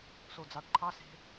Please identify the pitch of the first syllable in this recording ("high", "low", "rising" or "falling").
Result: low